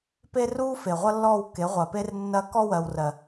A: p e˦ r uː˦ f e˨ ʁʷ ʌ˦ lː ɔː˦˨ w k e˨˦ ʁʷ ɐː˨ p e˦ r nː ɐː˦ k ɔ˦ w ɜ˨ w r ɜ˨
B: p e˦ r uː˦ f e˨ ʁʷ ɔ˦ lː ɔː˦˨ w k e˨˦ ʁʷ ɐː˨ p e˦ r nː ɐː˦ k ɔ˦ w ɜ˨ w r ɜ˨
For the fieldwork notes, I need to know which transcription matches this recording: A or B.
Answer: A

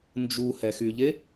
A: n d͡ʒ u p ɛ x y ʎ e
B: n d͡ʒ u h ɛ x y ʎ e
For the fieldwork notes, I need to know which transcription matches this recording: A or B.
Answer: B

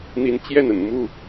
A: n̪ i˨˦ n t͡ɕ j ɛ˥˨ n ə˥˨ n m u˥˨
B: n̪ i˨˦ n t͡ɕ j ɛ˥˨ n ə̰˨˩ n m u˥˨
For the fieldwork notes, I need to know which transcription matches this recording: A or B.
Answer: B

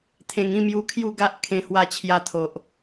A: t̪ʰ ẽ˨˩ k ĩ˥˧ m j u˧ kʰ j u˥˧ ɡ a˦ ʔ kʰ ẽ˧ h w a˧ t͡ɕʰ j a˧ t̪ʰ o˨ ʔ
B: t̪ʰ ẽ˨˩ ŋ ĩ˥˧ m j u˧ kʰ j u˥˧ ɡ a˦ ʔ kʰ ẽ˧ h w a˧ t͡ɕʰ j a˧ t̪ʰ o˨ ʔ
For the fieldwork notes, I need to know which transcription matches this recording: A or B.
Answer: B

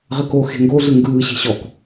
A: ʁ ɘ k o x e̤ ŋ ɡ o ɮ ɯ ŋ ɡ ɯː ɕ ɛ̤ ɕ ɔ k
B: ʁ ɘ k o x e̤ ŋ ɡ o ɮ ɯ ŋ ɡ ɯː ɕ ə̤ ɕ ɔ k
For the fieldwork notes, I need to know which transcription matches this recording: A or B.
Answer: A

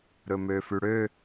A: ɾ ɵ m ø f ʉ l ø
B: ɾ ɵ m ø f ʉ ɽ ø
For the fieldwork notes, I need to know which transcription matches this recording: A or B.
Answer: B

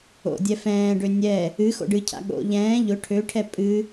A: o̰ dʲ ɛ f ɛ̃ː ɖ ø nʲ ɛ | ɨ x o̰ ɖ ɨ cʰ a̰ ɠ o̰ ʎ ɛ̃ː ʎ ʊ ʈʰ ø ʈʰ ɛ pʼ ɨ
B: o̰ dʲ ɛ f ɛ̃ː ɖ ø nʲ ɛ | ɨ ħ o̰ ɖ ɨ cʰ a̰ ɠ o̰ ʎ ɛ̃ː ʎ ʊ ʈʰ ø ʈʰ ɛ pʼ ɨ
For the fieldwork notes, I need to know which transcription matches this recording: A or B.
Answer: A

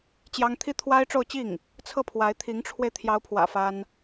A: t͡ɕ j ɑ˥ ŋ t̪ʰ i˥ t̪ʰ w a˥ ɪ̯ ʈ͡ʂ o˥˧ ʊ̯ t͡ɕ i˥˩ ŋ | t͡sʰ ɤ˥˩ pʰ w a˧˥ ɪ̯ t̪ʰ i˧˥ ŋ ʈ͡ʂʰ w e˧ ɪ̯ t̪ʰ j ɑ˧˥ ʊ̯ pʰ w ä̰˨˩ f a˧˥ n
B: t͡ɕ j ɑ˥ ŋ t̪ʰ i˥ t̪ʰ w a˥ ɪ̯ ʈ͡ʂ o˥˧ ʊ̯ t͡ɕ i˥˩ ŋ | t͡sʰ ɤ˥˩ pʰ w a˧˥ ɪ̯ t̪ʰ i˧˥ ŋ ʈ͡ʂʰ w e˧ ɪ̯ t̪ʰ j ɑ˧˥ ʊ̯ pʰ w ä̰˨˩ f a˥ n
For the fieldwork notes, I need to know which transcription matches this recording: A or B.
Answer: B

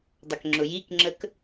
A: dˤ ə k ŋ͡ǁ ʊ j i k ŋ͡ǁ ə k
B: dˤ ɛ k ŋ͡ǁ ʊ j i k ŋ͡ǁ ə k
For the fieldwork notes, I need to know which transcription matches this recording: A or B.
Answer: A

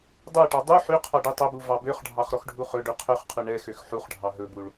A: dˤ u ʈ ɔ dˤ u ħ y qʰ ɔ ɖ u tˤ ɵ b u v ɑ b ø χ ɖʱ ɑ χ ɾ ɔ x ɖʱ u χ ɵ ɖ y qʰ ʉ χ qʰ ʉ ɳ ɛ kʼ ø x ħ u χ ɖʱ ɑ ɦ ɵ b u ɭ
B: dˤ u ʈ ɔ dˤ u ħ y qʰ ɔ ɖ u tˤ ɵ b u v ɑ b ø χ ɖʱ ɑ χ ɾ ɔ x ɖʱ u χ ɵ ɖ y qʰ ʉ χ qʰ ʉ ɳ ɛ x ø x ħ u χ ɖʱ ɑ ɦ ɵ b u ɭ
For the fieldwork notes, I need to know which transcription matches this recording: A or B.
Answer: B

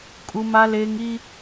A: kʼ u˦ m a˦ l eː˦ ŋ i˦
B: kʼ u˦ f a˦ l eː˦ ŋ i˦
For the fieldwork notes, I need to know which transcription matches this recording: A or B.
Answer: A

